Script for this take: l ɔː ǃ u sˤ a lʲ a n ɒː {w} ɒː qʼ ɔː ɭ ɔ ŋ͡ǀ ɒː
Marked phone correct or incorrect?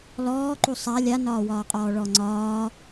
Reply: correct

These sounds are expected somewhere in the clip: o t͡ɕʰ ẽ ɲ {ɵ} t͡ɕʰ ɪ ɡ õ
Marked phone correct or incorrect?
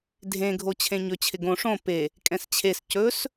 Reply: correct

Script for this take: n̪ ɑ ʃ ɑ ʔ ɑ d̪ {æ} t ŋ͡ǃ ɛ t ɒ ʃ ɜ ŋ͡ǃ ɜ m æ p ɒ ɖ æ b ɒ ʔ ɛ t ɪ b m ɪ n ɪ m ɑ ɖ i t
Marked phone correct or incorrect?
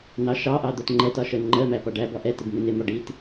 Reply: incorrect: ɜ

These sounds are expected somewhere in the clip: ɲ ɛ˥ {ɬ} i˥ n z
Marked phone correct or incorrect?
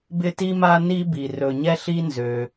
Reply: correct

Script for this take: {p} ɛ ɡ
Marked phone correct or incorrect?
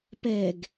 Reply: correct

